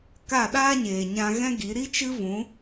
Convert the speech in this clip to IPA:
k a˦˨ ɗ aː˦ ɲ eː˨ ɲ ã˧ ɣ ɛ̃˦ ɡ i˨˦ ɾ i˦ t͡ʃ ɨ˦ v ũ˨˦

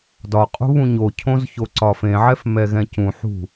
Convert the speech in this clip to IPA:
d ɒ qʼ ṳ β ũ ɲ o cʰ õ z ç o ǀ ɒ f ẽ ʕ ɛ f m ɛ ɣ ɛ̃ c ũ ħ ṳ

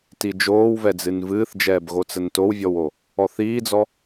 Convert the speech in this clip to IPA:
t i d͡ʒ oː w v ɛ d͡z ɨ n v ɨː θ d͡ʒ ɛː b ɣ o t͡s ə n t o w vʲ ɔ w o | ɔ θ iː d͡z ɔ

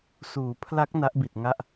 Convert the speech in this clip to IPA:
s uː˩˦ pʰ l a˦˥ k̚ n a˦˥ ʔ b i˨˩ t̚ ŋ a˦˥ ʔ

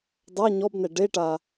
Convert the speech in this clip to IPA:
dˤ a ɲ ɔ b n ɛ ɖ e ʈ a

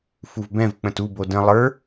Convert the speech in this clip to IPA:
f u v b ɛ̃ v k͡p ə̃ t u b o d ə̃ lˠ ə˞

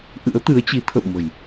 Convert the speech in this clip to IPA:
ʔ ɨ̰˧˥ ə̯ t̪ ɨ˨˦ ə̯ t͡ɕ i˨˦ t̪ʰ ə̰˧˨ w m ə̤˨˩ j

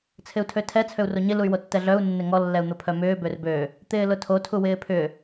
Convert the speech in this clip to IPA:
t͡sʰ ɪ u̯ tʰ ø tʰ ɛ t͡sʰ ø u̯ r o ɲ ɪ l u y̯ w o tː ɛ ɮ œ u̯ nː ɪ ŋ ɔ lː ɛ u̯ n̪ ʊ pʰ œ m ʏː b ø r b ø | t̪ ɪː l ʊ tʰ o tʰ u w ɪː pʰ ʏ

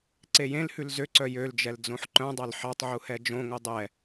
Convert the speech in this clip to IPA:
ǀ e j ẽ l h ʉ l z ø ǀ œ j ø l d͡ʒ ɛ l d͡z õ ħ ǃ œ̃ dˤ ɑ l ħ ɑ tˤ ʕ u h ɛ d͡ʒ õ ŋ o dˤ ɛ

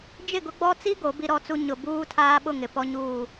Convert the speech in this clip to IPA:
d͡ʒ ɪ˦˨ ɡ ʊ˦ ɡ͡b ɔ˦ t͡s i˦ ɡ o˨˦ b i˦ ɾ ɔ˦ t͡s u˦ ɲ ʊ˨ b uː˦ tʰ aː˦ ɓ ʊ˦˨ ŋ ɪ˨ p ɔ˦ ɲ uː˦˨

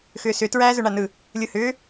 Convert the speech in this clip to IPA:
x ʏː s ʏ t ɹ æː z ɵ ɳ a n ɯ | lʲ ɯ h ʏː

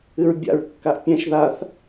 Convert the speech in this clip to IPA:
ɨ ɹ bʲ a̰ ɹ kː a ʔ pʲ ɛ̃ ʃ ð a θ

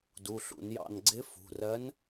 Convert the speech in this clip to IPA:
d u˩˧˩ ɬ ṵ˧˩˧ n j ɑ̰˦˨ n ɡ͡ǀ ɪ˧˥ f ṳ˩˧˩ r ɜ˧˥ n

